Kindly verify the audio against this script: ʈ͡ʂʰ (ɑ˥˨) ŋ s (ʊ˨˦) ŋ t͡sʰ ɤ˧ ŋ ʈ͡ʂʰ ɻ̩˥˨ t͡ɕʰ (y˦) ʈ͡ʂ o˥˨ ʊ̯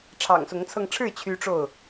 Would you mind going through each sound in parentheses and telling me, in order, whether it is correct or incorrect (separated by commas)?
incorrect, correct, correct